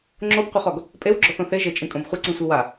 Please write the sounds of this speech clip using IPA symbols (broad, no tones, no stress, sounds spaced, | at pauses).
ŋ͡ǁ o b qʷ ɛ χ ɔ ɡ | pʼ e w ɡ͡ǁ ɔ θ õ θ e ʒ e t͡ʃʼ ĩ kʼ õ b χʷ ɪ ǀ ĩ sʷ i w a